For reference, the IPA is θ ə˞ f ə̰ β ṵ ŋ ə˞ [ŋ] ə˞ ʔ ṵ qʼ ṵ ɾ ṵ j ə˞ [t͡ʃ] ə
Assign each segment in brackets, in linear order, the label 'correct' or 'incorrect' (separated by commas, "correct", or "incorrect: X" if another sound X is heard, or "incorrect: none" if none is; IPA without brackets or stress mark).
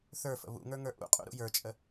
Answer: correct, incorrect: t͡ʃʼ